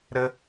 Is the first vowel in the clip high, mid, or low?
mid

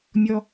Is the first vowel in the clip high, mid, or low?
mid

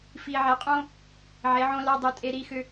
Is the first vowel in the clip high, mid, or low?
high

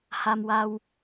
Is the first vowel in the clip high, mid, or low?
low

